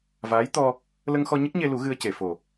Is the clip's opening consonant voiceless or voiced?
voiced